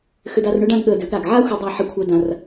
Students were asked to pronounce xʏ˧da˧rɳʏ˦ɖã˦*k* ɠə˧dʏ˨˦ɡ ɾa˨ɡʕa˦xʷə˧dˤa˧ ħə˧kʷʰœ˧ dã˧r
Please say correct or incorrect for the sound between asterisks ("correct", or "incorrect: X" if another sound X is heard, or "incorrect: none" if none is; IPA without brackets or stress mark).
incorrect: ɡ